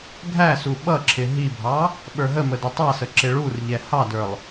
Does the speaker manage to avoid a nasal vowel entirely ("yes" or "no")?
yes